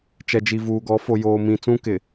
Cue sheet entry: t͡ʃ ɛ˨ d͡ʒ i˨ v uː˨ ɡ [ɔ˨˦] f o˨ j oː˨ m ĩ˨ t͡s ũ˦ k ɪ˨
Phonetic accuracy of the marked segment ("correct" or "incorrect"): correct